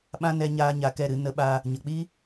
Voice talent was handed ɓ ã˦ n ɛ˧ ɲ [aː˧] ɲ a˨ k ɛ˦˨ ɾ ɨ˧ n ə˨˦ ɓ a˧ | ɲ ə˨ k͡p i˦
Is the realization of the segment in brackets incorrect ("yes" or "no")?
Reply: no